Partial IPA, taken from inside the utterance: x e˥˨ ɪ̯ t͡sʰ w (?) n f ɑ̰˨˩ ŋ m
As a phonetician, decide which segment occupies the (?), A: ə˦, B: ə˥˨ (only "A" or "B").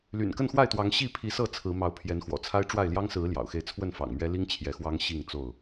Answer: B